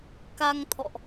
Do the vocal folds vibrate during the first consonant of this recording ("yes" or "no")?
no